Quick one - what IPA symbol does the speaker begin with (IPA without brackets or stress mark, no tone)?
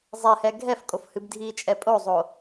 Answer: zˤ